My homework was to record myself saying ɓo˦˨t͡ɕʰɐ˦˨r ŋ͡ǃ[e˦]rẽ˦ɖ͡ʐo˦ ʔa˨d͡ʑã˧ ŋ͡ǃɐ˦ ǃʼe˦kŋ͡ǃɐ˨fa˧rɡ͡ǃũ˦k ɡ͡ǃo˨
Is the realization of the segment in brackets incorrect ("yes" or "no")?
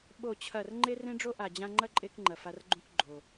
no